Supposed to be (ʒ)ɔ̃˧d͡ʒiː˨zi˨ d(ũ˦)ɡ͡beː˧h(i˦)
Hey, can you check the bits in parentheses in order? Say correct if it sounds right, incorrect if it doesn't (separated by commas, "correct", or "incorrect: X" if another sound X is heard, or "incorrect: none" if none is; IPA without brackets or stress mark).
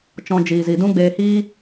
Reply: incorrect: t͡ʃ, correct, incorrect: iː˦